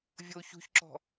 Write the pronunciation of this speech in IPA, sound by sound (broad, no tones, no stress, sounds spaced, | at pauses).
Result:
vʲ o ç ṳ ç ǁ ɔ̤